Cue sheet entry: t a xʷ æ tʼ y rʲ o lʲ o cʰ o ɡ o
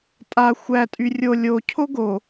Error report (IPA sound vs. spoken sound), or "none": t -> tʼ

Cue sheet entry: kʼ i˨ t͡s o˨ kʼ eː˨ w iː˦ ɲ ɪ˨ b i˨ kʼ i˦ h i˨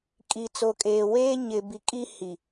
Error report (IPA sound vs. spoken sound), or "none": iː˦ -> eː˦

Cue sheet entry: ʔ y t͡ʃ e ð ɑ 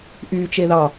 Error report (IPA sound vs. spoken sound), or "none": none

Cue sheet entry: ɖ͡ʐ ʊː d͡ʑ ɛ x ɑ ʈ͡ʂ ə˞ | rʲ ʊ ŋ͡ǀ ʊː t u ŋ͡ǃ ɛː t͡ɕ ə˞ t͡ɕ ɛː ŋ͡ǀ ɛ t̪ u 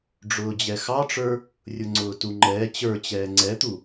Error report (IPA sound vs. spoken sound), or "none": none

